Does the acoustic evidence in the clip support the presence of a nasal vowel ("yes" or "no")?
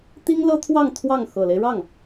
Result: no